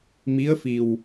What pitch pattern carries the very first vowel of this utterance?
rising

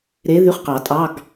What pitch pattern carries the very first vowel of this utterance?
rising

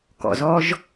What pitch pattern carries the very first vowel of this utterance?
low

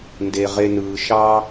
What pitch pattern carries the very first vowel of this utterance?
low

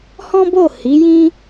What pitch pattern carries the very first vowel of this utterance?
high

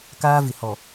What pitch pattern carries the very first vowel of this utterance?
high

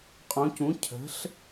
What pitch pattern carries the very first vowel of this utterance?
rising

